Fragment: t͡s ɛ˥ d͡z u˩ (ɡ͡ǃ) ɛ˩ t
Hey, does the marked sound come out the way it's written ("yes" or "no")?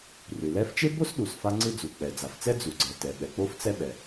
no